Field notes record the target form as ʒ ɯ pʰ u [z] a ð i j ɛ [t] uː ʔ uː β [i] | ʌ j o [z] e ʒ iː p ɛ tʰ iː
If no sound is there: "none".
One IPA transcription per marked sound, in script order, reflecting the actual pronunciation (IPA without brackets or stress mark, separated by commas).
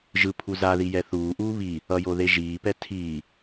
z, θ, i, ð